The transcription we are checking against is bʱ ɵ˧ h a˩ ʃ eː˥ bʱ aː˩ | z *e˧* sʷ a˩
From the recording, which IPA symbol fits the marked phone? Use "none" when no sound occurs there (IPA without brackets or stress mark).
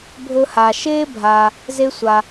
e˧